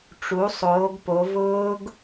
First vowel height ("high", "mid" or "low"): high